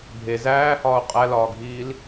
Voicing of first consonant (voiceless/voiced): voiced